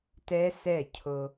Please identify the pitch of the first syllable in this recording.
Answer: high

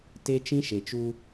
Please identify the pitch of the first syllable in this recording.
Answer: high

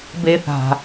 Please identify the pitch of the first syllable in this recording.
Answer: high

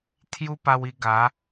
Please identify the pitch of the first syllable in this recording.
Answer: high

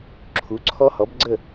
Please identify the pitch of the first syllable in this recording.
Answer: rising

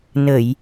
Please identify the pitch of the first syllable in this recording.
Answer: low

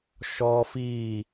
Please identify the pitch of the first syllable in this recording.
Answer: high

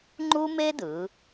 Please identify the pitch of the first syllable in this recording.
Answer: high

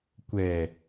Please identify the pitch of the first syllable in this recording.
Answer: low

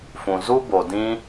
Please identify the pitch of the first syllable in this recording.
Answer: low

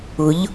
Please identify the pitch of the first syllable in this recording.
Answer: rising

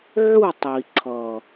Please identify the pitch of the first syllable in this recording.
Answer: falling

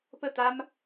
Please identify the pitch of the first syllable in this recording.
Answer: falling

